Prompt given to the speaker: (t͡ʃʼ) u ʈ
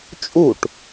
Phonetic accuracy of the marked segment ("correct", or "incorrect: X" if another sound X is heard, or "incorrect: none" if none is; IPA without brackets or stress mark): correct